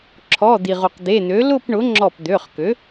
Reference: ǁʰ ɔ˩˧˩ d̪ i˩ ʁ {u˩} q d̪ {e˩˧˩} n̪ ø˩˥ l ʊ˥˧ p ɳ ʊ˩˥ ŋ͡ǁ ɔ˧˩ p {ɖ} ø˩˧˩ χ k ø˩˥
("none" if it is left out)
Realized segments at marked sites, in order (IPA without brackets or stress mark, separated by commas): u˩, e˩˧˩, d̪